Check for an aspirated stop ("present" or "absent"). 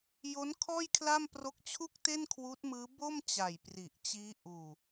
present